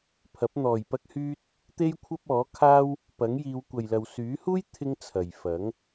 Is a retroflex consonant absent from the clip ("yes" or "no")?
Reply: yes